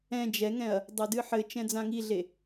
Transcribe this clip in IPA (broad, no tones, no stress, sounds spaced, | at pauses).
ɛ̃ d͡ʒ ɛ ŋ ɛ̃ ɐ̯ | dˤ o d ɨ ħ ɘ t͡ʃ ɛ̃ d͡z ã ŋ i ɮ e